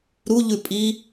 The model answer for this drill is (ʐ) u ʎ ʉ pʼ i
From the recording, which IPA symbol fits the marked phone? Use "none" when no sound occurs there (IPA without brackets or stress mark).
ɾ